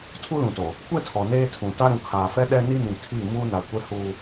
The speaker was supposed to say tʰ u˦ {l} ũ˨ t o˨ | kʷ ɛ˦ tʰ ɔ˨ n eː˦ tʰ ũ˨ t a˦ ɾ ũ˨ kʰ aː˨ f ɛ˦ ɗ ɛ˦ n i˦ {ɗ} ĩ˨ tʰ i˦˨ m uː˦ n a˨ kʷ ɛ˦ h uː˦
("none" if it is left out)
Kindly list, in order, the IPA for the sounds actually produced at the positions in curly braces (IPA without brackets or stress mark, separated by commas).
l, n